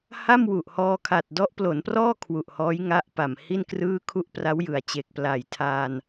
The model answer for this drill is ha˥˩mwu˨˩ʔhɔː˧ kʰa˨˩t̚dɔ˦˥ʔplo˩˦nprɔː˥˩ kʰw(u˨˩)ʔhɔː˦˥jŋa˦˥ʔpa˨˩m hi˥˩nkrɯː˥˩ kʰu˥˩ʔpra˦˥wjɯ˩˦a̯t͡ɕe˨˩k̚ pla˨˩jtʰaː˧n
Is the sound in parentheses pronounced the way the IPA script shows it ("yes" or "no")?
yes